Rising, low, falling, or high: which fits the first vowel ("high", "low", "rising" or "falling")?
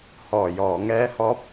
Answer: low